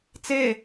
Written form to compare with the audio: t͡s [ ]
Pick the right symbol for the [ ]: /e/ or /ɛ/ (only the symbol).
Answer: e